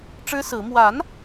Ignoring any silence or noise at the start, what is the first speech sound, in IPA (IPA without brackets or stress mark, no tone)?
ʈ͡ʂ